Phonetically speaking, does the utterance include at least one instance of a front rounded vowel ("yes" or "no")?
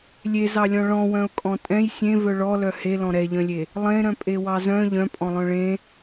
yes